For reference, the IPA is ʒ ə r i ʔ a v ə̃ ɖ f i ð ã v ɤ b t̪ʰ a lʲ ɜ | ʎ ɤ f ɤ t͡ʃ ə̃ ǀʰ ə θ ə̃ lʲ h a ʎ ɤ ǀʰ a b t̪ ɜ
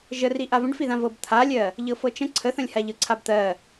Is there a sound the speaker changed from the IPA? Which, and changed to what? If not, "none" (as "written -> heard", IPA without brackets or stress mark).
none